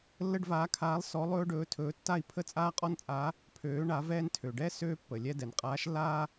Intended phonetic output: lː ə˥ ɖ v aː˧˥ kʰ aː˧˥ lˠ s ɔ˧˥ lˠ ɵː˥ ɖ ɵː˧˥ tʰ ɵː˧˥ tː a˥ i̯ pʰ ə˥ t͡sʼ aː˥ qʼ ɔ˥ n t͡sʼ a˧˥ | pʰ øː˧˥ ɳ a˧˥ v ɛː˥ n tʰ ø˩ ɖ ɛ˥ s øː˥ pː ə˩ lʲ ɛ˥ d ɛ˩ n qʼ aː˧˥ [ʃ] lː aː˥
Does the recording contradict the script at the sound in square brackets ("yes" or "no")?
no